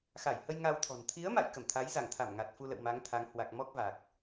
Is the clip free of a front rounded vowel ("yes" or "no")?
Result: yes